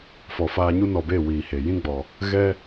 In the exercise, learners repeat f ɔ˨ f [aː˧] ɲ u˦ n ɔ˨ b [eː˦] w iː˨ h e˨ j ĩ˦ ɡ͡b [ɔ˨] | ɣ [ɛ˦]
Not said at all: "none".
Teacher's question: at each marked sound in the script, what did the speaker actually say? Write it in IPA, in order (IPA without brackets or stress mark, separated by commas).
aː˧, eː˦˨, ɔ˨, ɛ˦